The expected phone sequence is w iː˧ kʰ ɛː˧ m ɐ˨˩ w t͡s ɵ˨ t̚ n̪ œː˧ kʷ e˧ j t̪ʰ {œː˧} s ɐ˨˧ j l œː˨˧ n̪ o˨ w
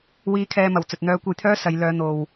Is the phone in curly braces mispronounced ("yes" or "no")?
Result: yes